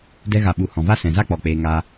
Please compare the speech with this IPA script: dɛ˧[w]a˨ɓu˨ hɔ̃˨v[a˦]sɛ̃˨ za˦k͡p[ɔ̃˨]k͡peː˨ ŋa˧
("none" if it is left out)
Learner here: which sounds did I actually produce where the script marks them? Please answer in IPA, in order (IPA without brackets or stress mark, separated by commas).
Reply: ɣ, a˦, ɔ˨